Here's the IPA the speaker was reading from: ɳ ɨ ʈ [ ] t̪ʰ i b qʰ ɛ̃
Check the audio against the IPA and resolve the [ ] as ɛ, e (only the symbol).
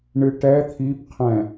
ɛ